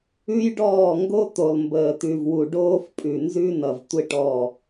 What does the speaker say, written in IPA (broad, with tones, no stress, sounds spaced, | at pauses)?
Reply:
ʉ˦ j ɖ ɔː˦˨ ŋ ɡ o˦ t̪ o˨ lˠ m b əː˨ t̪ ʉ˨ v w u˨ ɖ oː˦ f pʼ ʉ˨ n z ʉ˦ n ʌ˨ v tʷ ɪ˦ ʈ ɔ˦˨